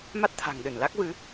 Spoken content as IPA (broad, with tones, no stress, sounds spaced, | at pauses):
m a˦˥ t̚ t̪ʰ a̤˨˩ ŋ ɗ ɨ˧˩ n l a˦˥ k̚ v ɨ˨˦